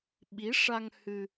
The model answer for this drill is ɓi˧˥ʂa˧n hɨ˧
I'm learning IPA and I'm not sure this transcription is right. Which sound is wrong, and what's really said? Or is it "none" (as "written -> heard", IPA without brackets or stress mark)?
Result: n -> ŋ